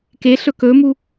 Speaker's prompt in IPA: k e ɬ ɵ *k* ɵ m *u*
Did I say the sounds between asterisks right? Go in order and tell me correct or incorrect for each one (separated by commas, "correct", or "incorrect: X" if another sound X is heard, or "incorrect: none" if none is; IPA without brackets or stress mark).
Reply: correct, correct